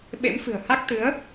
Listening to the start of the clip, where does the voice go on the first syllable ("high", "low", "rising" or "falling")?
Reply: rising